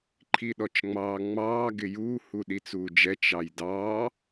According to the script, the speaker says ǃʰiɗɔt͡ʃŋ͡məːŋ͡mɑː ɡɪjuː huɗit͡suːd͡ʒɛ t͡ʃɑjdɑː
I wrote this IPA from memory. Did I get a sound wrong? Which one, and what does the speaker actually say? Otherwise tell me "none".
əː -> ɑː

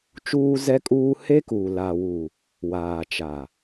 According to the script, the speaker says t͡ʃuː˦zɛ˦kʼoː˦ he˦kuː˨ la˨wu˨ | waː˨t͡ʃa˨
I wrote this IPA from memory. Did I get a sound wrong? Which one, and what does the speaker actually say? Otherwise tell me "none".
oː˦ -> uː˦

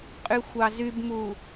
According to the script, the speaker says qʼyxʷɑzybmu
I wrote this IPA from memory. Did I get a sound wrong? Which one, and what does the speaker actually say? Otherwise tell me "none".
none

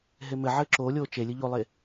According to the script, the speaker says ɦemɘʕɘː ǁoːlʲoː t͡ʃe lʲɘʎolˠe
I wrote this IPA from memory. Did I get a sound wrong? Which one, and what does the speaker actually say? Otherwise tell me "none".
none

